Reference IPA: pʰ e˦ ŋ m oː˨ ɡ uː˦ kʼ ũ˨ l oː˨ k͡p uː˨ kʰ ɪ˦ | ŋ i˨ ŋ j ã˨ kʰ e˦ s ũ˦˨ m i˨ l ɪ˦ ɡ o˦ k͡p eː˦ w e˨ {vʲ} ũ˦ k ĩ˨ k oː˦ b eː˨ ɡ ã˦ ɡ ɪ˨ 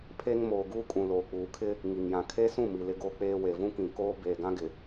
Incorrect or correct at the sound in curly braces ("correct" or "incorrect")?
incorrect